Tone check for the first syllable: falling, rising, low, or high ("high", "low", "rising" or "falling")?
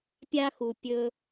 high